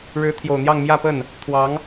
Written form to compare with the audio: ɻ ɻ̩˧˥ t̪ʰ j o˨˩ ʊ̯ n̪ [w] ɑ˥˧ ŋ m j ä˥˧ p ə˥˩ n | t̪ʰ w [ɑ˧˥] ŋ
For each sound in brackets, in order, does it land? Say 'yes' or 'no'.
no, yes

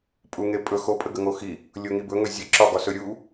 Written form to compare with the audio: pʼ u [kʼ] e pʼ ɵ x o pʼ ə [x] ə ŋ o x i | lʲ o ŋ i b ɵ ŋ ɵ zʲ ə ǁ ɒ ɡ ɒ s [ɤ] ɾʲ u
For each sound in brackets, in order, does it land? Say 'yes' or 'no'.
no, no, no

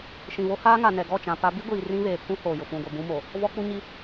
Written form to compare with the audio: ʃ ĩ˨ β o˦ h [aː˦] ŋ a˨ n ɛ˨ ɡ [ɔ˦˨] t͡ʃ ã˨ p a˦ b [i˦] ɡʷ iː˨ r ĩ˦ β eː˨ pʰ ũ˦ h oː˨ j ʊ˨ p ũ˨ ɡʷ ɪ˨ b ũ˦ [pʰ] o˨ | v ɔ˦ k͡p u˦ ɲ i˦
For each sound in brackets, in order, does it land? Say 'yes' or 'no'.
yes, yes, yes, no

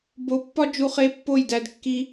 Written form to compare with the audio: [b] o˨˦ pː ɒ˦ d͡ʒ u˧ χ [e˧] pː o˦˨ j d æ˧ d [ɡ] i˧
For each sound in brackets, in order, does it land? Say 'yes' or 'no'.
yes, yes, no

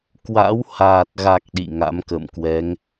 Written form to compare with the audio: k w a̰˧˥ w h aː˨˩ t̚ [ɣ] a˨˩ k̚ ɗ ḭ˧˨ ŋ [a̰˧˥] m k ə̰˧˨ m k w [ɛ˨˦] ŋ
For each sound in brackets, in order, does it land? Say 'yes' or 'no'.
yes, yes, yes

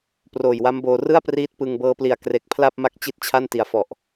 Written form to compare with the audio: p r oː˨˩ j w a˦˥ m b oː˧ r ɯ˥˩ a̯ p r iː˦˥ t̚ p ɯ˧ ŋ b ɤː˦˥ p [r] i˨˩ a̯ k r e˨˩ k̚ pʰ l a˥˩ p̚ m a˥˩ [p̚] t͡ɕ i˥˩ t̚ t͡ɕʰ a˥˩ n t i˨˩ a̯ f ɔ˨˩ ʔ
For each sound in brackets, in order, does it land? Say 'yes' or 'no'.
no, no

